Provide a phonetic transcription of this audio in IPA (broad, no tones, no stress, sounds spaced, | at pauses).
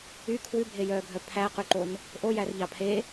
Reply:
y kʰ w ʉ bʱ e j œː ɡʱ œ pʰ æ q ʉ ǃ o n | ʔ o j æ r ʎ ɑ pʰ e